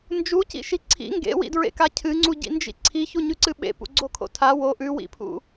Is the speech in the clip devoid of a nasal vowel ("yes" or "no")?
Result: yes